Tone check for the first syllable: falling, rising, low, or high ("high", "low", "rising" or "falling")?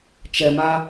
low